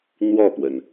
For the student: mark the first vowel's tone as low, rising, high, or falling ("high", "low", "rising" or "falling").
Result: falling